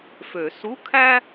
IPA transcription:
f ø˨˩˦ s u˧˥˧ kʰ æ˥

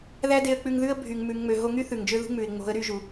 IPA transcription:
ð æ˦ d e˧ ə̯ k͡p ʉ˧ ŋ ð ʉ˦ ə̯ bʱ y˨ ŋ m ʉ˨ ŋ ŋ͡m ø˨ ɦ o˧ ŋ y˦ θ ʉ˨ ŋ d͡ʒ ø˦ ð ṳ˦ ŋ͡m ʉ˨ ɪ̯ ŋ͡m o̤˨˦ ə̯ ɾ y˧ ʒ u˨

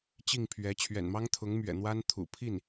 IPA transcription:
t͡ɕ i˥˩ ŋ pʰ ɥ ɛ˧˥ t͡ɕʰ ɥ ɛ̰˨˩ n m ɑ˥ ŋ t̪ʰ ʊ˧˥ ŋ m ɥ ɛ̰˨˩ n̪ w a˥ n t̪ʰ ṵ˨˩ pʰ i˥˩ n

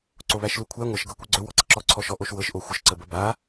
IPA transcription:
ǀ o β æ ʃ l u kʷʰ æ ŋʷ ɤ ʃ ɡ ɤ kʷ ɤ ɡ͡ǀ ɵ w ɔ ǀ ə ǁ ɔ ǀʰ ɔ ʃ ɔ ʔ o ʃ w ɤ ʃ ʔ o xʷ ə ʃ ǀ ə b ə b a

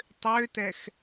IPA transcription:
tˤ ø t ɛ x

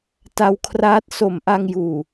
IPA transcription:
t a˧ w kʰ r aː˦˥ t̚ s o˨˩ m ʔ a˧ ŋ j uː˨˩

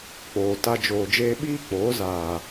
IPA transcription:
k͡p oː˨ t a˧ d͡ʒ oː˨ d͡ʒ eː˧ ɓ iː˦ k͡p oː˨˦ z aː˨

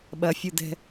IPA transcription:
ɓ ɐ fʲ u d ɛ̤

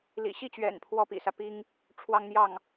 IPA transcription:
l ḭ˨˩ ɕ i˥˩ t͡ɕ ɥ ɛ̰˨˩ n pʰ w ɔ˥˩ p ḭ˨˩ s ä˦ p i˥ ŋ | ʈ͡ʂʰ w ɑ˥ ŋ n̪ j ɑ˥˩ ŋ

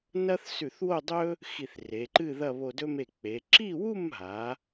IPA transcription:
n ɐ˥ θ s ʉ˧˩ θ w o˥˧ dˤ ɵ˥ | x i˧˩ θ r e˩˧ ǃ ɨ˥˧ ð ɐ˥˧ β o˧ d ɵ˥ m e˧˩ k͡p e˩˧ ǁ i˥˧ w u˥˧ m ɦ a˩˧

